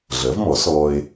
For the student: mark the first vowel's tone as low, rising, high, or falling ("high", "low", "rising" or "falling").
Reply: rising